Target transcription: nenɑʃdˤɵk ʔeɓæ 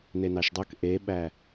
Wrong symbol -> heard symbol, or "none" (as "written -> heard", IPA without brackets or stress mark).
none